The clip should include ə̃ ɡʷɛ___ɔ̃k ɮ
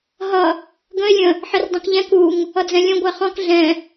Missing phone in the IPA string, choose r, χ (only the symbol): χ